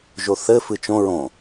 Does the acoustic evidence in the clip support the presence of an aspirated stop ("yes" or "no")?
no